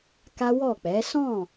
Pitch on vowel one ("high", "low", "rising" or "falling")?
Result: high